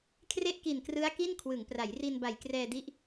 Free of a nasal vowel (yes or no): yes